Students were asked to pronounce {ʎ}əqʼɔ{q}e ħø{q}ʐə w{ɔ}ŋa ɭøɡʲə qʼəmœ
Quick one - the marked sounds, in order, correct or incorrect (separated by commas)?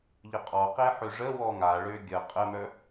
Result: correct, correct, incorrect, correct